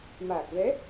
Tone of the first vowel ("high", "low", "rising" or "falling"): low